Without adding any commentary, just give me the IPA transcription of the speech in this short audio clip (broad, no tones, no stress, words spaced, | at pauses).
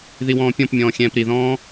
ðiwɔ̃ːpʲɔ̃pmʲɔ̃ː xʲɛ̃ːpɾiðɔ̃ː